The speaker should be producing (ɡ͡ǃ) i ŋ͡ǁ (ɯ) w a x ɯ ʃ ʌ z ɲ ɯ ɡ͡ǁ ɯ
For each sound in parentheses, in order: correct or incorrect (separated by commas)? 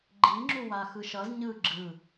correct, incorrect